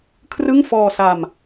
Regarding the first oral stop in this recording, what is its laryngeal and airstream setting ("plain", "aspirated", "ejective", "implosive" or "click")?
aspirated